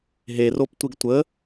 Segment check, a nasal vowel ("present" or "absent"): absent